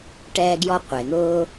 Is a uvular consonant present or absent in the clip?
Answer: present